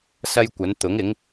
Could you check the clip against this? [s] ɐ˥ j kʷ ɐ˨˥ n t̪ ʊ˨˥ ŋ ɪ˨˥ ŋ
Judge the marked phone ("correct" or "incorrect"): correct